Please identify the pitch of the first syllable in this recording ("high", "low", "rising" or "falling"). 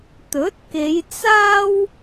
rising